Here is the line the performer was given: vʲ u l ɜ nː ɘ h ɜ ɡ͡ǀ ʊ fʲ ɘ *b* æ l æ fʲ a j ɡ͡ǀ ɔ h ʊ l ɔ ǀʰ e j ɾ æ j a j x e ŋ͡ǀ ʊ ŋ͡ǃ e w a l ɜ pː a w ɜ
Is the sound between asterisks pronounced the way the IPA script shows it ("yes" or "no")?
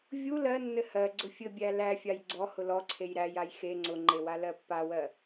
no